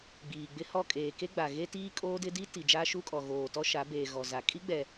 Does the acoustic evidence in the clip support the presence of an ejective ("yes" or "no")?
yes